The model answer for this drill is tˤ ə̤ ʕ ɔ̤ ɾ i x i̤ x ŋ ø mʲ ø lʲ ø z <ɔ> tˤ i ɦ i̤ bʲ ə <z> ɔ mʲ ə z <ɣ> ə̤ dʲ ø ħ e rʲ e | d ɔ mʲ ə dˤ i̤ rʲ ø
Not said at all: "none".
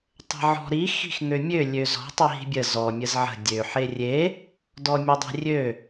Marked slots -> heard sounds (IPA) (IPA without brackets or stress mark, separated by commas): ɔ̤, z, ʕ